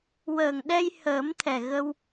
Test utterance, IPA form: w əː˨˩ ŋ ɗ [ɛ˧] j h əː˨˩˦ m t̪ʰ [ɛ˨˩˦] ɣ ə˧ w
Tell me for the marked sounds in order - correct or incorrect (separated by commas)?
correct, incorrect